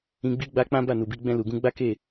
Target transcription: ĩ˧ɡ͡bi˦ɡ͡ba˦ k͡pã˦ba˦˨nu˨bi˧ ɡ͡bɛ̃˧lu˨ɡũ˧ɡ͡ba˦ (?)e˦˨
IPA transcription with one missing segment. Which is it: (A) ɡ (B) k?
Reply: B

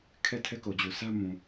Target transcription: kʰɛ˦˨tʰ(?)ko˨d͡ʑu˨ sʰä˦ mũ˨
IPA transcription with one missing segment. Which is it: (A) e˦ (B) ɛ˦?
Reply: B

